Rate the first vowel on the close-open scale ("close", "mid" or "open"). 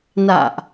open